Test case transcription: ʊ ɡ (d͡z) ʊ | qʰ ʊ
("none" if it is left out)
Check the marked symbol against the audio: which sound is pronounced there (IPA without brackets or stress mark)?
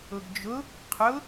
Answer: d͡ʒ